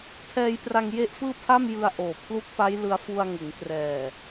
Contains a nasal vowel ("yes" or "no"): no